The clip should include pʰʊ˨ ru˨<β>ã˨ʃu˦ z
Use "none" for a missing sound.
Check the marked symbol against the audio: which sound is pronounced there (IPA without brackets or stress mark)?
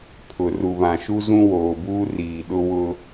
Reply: β